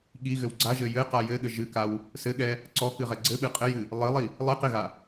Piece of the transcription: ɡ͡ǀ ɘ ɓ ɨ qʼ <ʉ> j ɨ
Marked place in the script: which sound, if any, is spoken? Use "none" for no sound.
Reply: ɘ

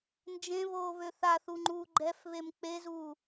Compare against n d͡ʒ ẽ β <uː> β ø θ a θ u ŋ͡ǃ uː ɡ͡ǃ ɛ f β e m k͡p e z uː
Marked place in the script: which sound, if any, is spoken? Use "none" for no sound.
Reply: oː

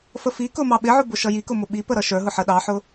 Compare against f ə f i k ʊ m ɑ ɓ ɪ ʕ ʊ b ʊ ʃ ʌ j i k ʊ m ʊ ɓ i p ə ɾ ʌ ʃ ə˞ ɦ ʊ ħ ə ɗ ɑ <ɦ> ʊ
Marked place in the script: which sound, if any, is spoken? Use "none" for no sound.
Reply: ħ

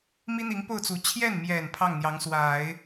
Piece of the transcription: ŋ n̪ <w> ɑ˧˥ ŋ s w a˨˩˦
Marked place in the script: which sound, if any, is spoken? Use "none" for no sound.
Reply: j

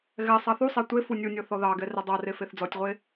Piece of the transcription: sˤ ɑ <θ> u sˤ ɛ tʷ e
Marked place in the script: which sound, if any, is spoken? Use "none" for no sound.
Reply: θ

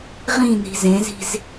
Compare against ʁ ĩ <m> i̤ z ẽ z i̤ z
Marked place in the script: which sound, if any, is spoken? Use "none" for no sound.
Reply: n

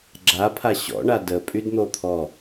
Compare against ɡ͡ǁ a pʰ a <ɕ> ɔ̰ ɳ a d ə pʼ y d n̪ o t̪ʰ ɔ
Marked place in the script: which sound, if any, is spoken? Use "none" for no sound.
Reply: ɕ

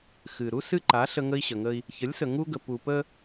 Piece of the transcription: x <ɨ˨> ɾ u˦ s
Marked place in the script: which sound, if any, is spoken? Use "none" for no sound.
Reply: ɨ˨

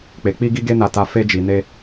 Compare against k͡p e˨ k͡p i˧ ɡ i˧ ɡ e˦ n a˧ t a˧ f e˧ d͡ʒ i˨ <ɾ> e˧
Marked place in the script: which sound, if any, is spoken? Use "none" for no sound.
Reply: n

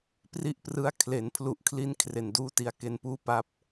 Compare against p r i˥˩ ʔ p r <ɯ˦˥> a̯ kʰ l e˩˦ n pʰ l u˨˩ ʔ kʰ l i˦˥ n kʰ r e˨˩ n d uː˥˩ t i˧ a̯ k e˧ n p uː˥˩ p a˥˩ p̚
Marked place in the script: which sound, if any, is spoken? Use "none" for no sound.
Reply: ɯ˦˥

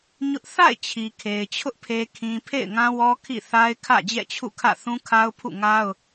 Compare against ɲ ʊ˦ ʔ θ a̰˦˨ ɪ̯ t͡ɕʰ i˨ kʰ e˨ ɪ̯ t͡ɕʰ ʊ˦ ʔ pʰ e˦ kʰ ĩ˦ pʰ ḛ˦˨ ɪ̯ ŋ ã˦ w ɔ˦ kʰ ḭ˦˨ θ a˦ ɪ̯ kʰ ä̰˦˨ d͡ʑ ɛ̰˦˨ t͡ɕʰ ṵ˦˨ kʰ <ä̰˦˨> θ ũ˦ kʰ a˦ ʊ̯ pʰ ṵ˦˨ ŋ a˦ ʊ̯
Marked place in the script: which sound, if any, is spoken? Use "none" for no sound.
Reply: ä̰˦˨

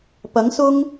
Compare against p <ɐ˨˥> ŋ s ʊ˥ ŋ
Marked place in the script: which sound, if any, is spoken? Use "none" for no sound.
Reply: ɐ˨˥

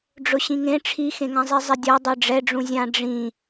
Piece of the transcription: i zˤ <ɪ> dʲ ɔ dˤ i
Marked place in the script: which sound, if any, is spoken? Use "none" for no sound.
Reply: ɪ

